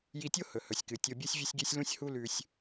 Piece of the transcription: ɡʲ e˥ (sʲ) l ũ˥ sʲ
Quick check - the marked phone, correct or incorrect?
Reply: correct